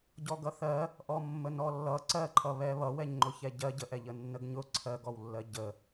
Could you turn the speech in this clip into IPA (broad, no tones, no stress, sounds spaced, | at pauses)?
ɟ ɔ ɡ ʌ θ ɜ | ʔ ɔ mː ə n ɔ lː ʌ ǀ ɜ ǃʰ ʌ β ɛ β ʌ w ɛ ɲ ŋ͡ǃ ʊ ç ɛ ɟ ɜ ɟ ə ʔ ɛ ʎ ə nː ə ɡ ɲ ʊ ǀʰ ɜ ɡ ɔ w lː ɜ ɟ ə